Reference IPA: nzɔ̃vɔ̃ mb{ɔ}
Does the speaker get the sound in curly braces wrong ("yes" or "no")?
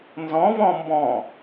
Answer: yes